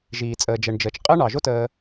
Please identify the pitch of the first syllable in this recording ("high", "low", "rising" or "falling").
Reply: low